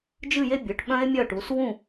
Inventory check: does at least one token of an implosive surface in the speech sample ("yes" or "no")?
yes